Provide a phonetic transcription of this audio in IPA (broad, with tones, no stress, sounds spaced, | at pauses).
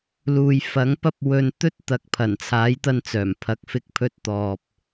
l uː˨ j f ɐ˨˥ ŋ p ɐ˥ p̚ w ɵ˧ n t̪ ɵ˥ t̚ t̪ ɐ˨˥ k̚ pʰ ɐ˨˩ n t͡sʰ aː˨˥ j t̪ ɐ˧ n t͡s œː˨˩ m pʰ ɐ˨ k̚ f ɪ˧ k̚ pʰ ɵ˧ t̚ t̪ ɔː˨ p̚